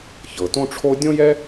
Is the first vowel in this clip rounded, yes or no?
no